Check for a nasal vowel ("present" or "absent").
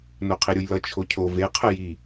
absent